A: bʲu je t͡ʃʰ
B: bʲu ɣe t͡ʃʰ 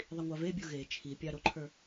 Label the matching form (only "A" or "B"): B